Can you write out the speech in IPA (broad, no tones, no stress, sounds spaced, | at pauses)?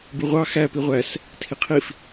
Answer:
b ɯ ʁʷ ɑ x æ p i ʁʷ æ s | tʰ i qʰ i f